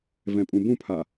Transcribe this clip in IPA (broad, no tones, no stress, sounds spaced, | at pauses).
v ɛ̃ pʼ ũ b ũ pʰ a